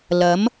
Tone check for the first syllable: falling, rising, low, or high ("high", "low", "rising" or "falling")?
rising